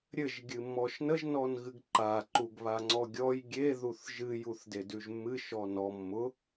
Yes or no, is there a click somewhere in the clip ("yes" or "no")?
yes